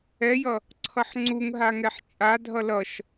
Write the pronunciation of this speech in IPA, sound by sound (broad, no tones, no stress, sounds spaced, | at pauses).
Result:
ɛ j ʌ | ǀʰ ʌ ħ ŋ͡ǀ u ŋ ɦ a ŋ ɛ ħ t͡ʃʼ a dʱ ʌ l ʌ ʃ